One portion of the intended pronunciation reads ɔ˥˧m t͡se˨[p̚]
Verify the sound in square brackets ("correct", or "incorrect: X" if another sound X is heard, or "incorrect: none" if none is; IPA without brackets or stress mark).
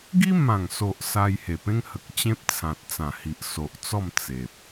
correct